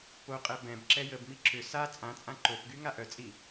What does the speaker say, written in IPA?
p o qʼ ɛ b ɛ̃ b ǁ ɛ j ə b m i ǁ ʏ s a t͡sʼ ã t͡sʼ ã ǃ o p ɡ y ŋ a ʔ œ t͡sʼ i

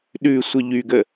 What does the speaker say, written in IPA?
ɗ ʉ sʷ ə ʎ y ɡ ə

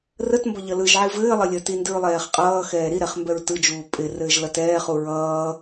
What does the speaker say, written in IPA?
r ə t m b ʌ ʎ ʌ l ɯ ʒ ʕ i v ɘː lˠ ə lʲ ə t i n d ɯ ɹ lˠ ɛː χ qʼ ʌː x ɛː ɾ i ɾ ɛ χ m b ɛ ɹ t ɯ d͡ʒ uː pʼ ɪ r ɘː ʒ l ʌ t ɛː χ u ɹ ʌː

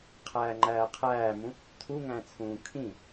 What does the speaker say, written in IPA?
qʰ æː ŋ͡ǃ æː qʰ æː m ũ | tʰ u ŋ æ̃ t͡sʰ ũː kʰ ĩ

